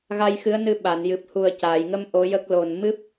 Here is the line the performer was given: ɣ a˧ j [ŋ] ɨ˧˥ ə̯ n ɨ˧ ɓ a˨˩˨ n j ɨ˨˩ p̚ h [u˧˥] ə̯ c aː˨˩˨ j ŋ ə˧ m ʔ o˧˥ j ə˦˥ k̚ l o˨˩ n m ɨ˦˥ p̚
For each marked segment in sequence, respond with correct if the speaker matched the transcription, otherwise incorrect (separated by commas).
incorrect, incorrect